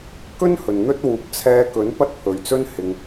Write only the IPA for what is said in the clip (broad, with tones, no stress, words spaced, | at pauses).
kɵ˥n hɵ˨nn̪ɵ˥t̚ wuː˨˥p̚ t͡sʰɛː˧kɵ˨˥n pɐ˥t̚pʰɵ˨ɥt͡sɵ˥n hɪ˨ŋ